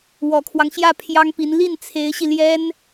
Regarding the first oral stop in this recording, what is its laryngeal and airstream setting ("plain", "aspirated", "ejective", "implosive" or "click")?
aspirated